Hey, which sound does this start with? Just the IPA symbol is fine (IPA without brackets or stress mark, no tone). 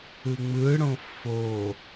ɯ